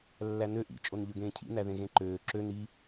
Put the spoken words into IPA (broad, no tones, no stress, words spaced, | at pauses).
lːænø ʔḭ t͡ʃʼonʎøɡẽːcʰḭ næðẽɣẽǃøː ǁø ni